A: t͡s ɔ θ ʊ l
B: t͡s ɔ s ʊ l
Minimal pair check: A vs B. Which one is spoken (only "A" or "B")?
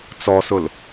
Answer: B